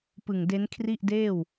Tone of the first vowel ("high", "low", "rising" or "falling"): low